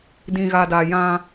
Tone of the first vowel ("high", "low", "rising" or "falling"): low